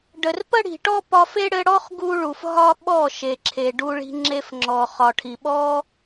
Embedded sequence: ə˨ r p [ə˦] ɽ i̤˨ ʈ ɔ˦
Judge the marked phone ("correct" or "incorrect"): correct